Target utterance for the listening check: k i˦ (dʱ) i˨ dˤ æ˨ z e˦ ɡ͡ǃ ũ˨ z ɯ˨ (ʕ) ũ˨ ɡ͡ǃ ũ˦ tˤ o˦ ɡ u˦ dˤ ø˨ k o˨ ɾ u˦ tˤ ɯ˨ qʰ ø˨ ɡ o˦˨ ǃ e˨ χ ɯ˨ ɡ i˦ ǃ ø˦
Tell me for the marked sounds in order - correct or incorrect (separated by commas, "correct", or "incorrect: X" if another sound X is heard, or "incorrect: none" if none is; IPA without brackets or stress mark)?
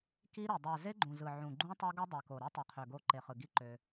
incorrect: ɾ, correct